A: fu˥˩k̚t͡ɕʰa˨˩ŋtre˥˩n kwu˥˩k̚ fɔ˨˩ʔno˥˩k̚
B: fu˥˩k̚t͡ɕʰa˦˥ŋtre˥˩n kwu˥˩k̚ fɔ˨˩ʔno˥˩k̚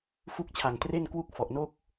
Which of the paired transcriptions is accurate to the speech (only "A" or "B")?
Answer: A